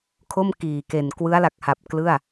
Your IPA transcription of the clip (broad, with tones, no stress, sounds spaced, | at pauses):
kʰ o˥˩ m k iː˨˩ k e˨˩ n k w ɯ˦˥ a̯ l a˨˩ k̚ h a˨˩ p̚ k l ɯ˥˩ a̯